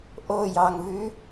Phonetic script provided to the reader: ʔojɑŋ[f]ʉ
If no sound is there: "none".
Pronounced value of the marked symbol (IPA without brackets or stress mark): v